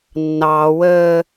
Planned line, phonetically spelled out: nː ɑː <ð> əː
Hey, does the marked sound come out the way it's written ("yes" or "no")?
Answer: no